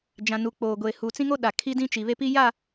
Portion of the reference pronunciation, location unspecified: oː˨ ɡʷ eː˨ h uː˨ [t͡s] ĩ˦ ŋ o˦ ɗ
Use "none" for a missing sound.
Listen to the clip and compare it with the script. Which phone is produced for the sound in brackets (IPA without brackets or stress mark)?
t͡s